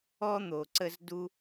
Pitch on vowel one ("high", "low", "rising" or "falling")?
high